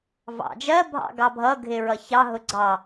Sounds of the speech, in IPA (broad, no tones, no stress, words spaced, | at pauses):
vɑ̰d͡ʒɜ bʱɑ̰ɡɑbʱʌ ɡʱɪɹʌçɑ ɦʊɡ͡ǀɑ